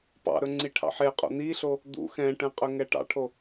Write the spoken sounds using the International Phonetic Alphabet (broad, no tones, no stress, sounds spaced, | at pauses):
p ɑ̰ ɾ ɵ ŋ͡ǀ i ʈʰ ɑ̰ ħ e qʼ o̰ n̪ i ɬ o | d̪ ṵ x ɛ̃ ʈ ɛ̃ qʼ ɵ ŋ ɛ ʈ ɑ̰ ʈʰ o